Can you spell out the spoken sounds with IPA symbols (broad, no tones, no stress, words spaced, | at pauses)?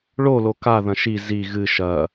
ɭolo ka ðɐ̃ʃi zi ɣɨ ʃɐ